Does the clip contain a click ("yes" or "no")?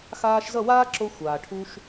yes